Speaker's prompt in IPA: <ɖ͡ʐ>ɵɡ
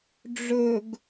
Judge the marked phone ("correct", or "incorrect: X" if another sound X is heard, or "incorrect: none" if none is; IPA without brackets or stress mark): correct